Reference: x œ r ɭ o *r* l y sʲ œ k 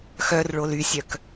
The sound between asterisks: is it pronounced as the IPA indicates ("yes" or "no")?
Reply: no